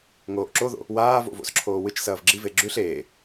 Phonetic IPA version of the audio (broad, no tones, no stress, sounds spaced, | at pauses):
ŋ oː ʔ ǁ o ð o̰ | w aː v o̰ v o̰ s ǁʰ oː w ɨ t͡ʃ s ɐː v ɡ͡ǁ i v e ɡ͡ǁ ʉ ɬ eː